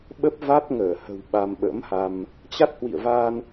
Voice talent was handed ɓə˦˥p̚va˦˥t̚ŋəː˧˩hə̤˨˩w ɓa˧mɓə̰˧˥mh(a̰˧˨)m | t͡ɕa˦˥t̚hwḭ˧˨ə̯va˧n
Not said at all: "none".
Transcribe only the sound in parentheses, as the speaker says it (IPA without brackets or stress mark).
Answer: a˧